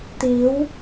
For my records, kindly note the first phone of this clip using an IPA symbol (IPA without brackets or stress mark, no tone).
t̪